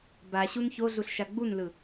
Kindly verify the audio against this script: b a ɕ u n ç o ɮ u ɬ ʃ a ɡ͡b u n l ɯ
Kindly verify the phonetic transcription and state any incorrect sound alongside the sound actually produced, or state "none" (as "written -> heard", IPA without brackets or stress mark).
none